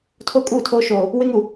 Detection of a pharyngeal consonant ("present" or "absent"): absent